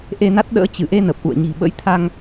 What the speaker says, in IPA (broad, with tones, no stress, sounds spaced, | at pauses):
ʔ e˧ n a˦˥ t̚ ɗ ə̰ː˧˥ t͡ɕ ɨ˧˩ ʔ e˧ n ə˨˩ p̚ ʔ ṵ˧˨ ə̯ ɲ i̤˨˩ ɓ ə̰˧˥ j t̪ʰ a˧ ŋ